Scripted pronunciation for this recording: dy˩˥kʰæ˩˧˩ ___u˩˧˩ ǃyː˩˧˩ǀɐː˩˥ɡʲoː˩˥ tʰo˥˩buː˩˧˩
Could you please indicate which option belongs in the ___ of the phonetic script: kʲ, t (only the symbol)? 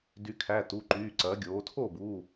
t